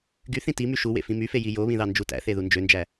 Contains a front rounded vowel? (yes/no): yes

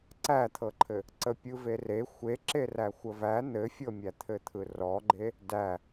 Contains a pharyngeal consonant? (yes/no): no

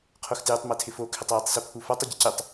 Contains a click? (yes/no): no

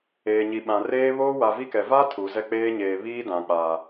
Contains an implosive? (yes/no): yes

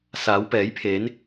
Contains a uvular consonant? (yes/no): no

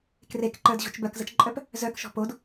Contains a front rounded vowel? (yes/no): yes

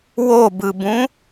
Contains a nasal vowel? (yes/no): yes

